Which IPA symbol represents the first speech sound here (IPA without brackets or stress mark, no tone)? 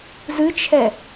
z